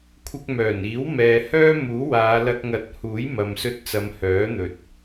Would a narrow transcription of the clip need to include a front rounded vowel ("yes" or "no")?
yes